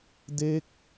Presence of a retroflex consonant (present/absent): absent